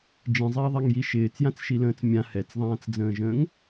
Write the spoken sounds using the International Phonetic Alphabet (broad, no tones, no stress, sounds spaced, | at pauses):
d͡ʒ ĩ zˤ ɪː ðˤ ɛ ŋ j i ʃ ɪː t͡s j ã t͡s ʃ i l ə̃ː t͡s mʲ ã h ɛ t͡s ðˤ ãː t͡s d͡z ə̃ː ʒ ə̃ː ŋ